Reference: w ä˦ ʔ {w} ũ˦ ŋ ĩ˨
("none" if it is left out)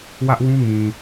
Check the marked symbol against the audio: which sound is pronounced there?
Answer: w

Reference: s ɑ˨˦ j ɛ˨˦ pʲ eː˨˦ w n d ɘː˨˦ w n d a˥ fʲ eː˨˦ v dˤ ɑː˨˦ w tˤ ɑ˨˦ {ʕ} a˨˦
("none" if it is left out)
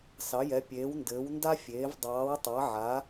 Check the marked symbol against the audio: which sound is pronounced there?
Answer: ʕ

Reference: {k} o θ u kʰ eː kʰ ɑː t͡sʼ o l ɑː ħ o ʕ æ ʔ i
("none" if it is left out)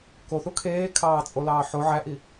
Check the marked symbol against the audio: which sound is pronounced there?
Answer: k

